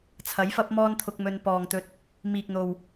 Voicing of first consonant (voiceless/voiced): voiceless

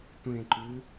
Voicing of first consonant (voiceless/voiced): voiceless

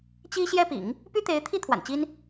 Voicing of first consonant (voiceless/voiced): voiceless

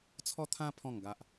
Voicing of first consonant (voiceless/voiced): voiceless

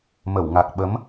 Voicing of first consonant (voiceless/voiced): voiced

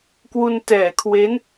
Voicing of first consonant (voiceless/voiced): voiceless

